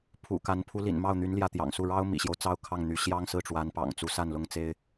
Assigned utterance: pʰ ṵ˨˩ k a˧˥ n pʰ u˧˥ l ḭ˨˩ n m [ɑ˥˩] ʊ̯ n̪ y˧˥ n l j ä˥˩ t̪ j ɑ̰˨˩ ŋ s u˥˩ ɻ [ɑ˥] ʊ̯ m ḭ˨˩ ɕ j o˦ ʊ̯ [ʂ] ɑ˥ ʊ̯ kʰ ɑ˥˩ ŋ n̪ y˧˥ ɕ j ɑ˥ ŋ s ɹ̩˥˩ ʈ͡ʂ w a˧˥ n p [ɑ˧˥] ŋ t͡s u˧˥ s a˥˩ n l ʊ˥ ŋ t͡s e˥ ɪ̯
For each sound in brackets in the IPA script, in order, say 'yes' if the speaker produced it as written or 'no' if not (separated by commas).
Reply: yes, yes, no, no